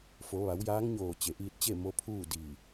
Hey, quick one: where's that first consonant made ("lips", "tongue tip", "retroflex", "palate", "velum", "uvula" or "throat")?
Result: lips